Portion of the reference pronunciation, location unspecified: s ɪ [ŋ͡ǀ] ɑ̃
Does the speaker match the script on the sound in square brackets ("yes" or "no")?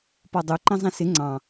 yes